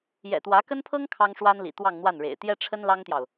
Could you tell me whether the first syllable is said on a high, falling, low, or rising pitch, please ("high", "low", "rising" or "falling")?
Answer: low